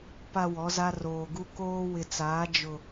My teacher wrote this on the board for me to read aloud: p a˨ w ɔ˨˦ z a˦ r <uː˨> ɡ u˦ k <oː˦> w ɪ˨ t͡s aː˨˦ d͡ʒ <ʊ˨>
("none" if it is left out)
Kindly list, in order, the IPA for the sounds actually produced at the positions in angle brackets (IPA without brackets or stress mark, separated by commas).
oː˨, oː˦, ʊ˨